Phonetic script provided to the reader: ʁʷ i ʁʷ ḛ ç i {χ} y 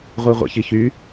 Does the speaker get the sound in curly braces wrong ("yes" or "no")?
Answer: yes